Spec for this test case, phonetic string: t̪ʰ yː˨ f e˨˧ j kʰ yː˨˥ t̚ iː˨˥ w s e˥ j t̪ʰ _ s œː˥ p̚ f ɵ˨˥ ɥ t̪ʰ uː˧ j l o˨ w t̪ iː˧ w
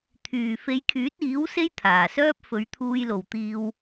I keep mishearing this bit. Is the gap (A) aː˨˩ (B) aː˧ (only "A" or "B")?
A